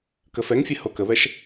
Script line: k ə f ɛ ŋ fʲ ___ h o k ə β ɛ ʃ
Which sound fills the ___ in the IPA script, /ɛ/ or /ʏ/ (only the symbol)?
ɛ